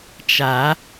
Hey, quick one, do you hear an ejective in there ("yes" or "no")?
no